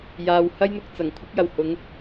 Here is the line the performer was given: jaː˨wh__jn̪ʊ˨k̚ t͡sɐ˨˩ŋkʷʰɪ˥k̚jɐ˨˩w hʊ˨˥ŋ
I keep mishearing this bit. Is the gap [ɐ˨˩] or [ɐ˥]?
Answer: ɐ˥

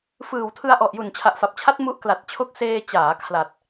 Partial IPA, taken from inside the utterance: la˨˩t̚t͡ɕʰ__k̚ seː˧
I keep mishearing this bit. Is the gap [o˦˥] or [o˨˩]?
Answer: o˦˥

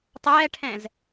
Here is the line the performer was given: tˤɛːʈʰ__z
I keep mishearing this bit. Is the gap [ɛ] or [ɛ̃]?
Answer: ɛ̃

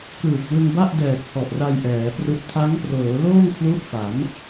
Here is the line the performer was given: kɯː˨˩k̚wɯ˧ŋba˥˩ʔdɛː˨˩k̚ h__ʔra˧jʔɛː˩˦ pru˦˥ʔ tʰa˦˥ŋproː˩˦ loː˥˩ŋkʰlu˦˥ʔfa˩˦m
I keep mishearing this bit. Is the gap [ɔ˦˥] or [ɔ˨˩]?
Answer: ɔ˨˩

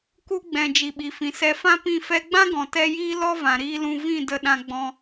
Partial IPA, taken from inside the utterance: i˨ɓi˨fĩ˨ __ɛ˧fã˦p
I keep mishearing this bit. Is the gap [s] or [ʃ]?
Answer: s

